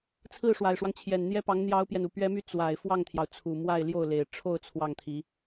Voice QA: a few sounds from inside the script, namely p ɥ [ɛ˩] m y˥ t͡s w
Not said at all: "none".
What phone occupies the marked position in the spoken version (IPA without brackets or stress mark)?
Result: ɛ˥